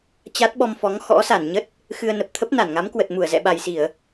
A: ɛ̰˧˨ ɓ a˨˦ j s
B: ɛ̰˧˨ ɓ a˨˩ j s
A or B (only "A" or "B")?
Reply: B